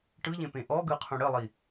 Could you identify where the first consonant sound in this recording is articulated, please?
retroflex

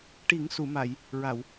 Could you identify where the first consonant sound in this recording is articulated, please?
retroflex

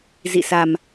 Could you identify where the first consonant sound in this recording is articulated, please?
alveolar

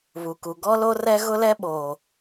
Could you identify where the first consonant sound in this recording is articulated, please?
labial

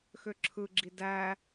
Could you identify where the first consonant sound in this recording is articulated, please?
velar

